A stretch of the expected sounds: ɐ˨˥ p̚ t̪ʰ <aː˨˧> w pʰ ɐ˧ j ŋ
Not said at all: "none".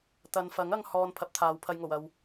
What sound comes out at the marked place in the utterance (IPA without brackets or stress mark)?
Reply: aː˨˧